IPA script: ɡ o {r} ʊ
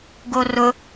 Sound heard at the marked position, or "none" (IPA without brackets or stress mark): r